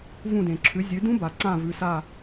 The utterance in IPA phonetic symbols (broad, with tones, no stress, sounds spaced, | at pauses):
v ũ˧˩ d ẽ˩ ǁʰ ʉ˩˥ zʲ ʉ˩˥ d ũ˦˥ b a˩ ǀ ã˧˩ v ʉ˩˧˩ s a˧˩